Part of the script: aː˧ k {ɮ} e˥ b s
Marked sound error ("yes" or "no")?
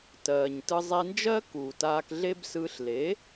no